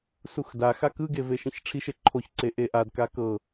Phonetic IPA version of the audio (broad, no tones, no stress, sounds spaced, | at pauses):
s u x d a x a k ɯ ɡ e v e ʃ ĩ ç ʈ͡ʂʰ i ʃ e ǃʰ o ç ǀ e ʔ e ʔ a d k a k ɤ